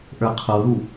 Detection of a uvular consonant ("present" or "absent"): present